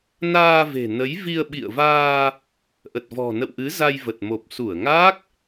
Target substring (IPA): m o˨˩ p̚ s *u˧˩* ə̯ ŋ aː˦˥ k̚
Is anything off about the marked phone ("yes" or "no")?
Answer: no